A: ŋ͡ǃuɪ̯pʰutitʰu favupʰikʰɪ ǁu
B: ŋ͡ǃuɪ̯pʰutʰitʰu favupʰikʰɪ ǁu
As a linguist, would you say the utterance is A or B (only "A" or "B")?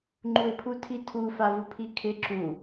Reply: B